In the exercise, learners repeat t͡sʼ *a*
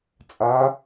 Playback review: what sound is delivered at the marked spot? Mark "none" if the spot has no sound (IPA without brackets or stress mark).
a